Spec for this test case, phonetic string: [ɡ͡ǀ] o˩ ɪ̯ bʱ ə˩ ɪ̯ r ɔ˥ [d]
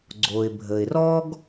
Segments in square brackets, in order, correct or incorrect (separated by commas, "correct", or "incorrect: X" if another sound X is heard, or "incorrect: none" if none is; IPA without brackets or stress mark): correct, incorrect: ɡ